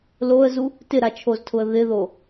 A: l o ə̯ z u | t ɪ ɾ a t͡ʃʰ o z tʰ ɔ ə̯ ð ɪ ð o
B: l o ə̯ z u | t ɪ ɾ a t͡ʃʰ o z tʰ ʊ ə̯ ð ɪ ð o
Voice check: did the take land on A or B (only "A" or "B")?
B